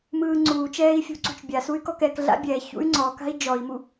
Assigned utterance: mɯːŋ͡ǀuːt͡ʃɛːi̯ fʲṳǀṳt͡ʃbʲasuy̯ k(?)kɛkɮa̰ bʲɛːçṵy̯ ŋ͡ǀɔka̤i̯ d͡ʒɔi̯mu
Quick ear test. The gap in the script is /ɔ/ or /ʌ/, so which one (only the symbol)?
ɔ